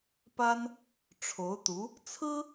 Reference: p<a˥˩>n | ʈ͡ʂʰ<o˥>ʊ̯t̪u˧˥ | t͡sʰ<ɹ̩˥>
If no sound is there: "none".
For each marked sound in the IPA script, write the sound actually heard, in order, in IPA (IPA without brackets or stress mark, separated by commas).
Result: a˥, o˧˥, ɹ̩˥